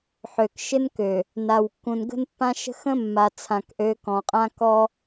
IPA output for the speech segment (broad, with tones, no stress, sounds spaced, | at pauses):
ħ ø˨ k ʃ ɪ˦ n k ø˨ | n a˨ w kː ũ˨ n ɡ ə̤˦ n pː ã˦ ʃ ə̤˦ x ə̃˦ mː a˨ t͡sʰ ã˨ k ʔ ø˨˦ k ɔ̃˨ qʼ ã˦ k ɔ˦